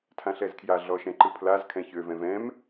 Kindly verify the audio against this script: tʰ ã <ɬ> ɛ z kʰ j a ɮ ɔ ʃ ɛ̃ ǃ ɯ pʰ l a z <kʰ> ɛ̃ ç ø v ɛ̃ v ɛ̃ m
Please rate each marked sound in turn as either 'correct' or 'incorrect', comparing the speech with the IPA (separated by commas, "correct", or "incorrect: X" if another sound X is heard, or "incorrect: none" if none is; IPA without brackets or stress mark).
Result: correct, correct